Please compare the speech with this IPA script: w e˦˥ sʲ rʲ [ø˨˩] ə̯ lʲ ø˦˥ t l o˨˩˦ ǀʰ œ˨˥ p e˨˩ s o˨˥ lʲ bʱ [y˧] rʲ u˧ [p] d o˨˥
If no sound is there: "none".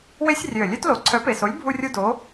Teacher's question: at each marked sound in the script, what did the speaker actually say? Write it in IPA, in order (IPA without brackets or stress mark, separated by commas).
ø˨˩, u˧, none